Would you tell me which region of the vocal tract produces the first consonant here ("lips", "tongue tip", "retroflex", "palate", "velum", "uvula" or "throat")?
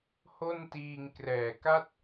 throat